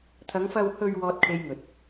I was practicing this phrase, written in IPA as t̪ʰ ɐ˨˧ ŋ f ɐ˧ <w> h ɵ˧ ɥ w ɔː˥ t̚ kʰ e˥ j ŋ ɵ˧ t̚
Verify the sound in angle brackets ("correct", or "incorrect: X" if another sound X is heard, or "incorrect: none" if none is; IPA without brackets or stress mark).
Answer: correct